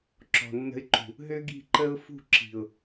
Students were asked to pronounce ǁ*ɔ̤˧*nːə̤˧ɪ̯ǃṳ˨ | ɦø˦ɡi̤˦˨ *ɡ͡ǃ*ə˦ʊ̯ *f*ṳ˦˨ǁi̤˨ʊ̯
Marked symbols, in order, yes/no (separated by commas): no, no, yes